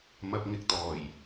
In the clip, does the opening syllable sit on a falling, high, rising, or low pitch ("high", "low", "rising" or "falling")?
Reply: low